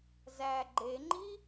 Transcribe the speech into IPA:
z æ ɡ͡ǃ e ŋ͡ǃ i

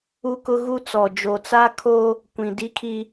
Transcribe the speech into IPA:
u˦ k ʊ˦ ɣ u˦ t͡s ɔ˨ d͡ʒ o˨ t͡s a˦ kʰ o˦ | kʷ ĩ˨ d i˦ kʰ i˦

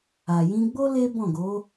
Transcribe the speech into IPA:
a˨ j ĩ˧ ɡ͡b o˦ l e˦ b ɔ̃˦˨ ɡ o˨˦

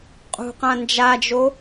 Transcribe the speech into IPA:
qʼ ṳ q ã n d͡ʒ a d͡ʒ o

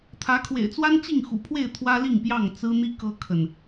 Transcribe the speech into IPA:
t̪ʰ ä˨˦ kʰ w ḛ˨˩ ɪ̯ t͡s w a˦ n t͡ɕ i˥˨ ŋ x ṵ˨˩ pʰ w e˥˨ ɪ̯ t̪ʰ w ä˦ l i˥˨ ŋ p j ɑ˥˨ ŋ t͡s ɹ̩˦ n̪ i˦ k ɤ˦ kʰ ə˨ n

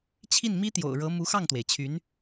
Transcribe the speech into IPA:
t͡ɕʰ i˥˩ n m i˥ t̪ j o̰˨˩ ʊ̯ ɻ ɤ˧˥ m u˧˥ x ɑ˥˩ ŋ t̪ w e˩ ɪ̯ t͡ɕʰ y˧˥ n

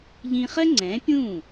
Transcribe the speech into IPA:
ʎ ĩ˧ χ ɜ˥ ŋ͡ǀ ɛ̃ː˩˥ pʲ ũː˥˩

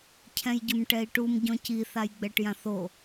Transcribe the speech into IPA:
cʰ ɛ̃ j ɟ ʊ m ʈ ɛ i̯ ʈ u m ɟ ɔ̃ c i θ a j ɡ͡b ɛ ʈ j ã θ o

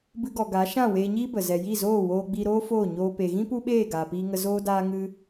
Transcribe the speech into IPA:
b ɨ˧ ɡ ɔ˨ ɡ a˨˦ ʃ ã˦˨ w eː˧ ɲ iː˦ b ə˨ z ɛ˨ j i˦˨ z oː˦˨ w oː˧ ɡ͡b i˧ ɾ oː˦ f oː˦˨ ɲ oː˧ p e˨ ɣ ĩ˦ p u˦ ɓ eː˦˨ ɡ aː˨ p iː˧ ŋ ə˧ z oː˦ d aː˦ ŋ ɨ˦

